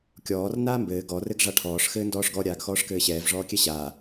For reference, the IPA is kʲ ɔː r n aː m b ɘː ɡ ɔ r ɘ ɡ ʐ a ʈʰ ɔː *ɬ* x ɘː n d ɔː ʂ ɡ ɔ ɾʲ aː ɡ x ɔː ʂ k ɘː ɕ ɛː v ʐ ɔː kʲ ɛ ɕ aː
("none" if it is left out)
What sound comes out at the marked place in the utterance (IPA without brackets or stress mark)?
ʂ